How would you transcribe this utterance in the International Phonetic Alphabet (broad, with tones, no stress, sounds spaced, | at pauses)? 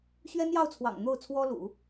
ɕ ɥ ɛ˥ n j ɑ˥˩ ʊ̯ t͡sʰ w ɑ̰˨˩ ŋ n̪ o˥˩ ʊ̯ t͡sʰ w ɔ˥ l ṵ˨˩˦